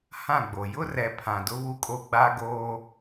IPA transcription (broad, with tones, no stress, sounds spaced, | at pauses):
h ã˦˨ ɡ͡b o˨ j ʊ˦ r ɛ˨ pʰ ã˨ d ʊ˦ β u˦ kʼ o˦ ɡ͡b a˦ ɡ oː˦